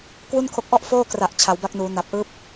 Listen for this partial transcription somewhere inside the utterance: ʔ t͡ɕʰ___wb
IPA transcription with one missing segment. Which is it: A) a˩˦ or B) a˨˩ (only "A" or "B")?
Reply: A